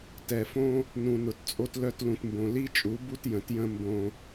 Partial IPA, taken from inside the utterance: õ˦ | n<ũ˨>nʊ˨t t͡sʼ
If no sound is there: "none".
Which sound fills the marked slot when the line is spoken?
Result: ũ˨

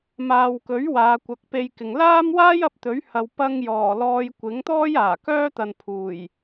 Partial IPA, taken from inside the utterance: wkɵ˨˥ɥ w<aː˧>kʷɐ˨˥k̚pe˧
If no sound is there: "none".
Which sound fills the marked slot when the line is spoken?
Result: aː˨˧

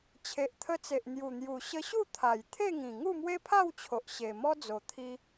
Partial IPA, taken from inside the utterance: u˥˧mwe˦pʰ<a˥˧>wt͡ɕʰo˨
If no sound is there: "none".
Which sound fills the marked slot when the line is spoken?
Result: a˥˧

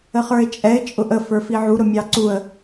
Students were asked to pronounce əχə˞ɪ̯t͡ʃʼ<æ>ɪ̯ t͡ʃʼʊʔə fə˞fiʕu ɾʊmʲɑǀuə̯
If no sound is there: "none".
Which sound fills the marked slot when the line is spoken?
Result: ɛ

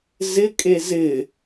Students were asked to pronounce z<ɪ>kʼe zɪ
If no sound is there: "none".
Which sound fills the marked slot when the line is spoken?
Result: ɪ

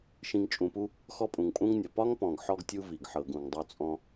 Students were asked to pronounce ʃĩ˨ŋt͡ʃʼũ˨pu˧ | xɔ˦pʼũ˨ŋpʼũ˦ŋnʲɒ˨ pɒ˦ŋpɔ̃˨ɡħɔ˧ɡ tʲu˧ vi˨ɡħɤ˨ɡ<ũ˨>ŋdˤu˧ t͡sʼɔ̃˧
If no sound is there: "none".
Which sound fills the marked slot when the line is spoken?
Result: ũ˨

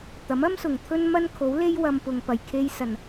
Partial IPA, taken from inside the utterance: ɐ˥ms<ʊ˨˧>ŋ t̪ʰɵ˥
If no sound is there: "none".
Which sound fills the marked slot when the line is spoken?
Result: ʊ˨˩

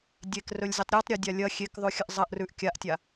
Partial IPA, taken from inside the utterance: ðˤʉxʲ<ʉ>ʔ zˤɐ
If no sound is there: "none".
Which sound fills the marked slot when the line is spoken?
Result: ɨ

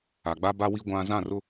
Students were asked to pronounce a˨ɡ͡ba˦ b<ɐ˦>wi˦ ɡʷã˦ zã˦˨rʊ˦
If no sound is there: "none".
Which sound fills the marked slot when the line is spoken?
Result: a˦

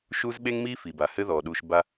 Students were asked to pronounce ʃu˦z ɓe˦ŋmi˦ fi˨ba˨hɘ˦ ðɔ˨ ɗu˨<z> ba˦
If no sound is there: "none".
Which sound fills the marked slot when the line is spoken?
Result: ʃ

